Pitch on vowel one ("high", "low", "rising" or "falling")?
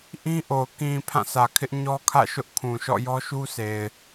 high